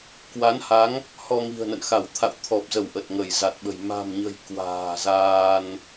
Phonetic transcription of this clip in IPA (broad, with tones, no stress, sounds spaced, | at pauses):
k w a˨˦ n h a˨˦ ŋ | h ɔ˧ ŋ i̤˨˩ ə̯ n ə̰˧˨ n x a˧˩ w t̪ʰ a̰˧˨ w t̪ʰ ɔ˨˩ p̚ z ə˧˩ w ʔ ə˨˩ t̚ ŋ ə˧˩ j z a˨˩ t̚ ɓ ə̤˨˩ j m a̤˨˩ m ɲ ə̤˨˩ j k w a̤ː˨˩ z aː˧ n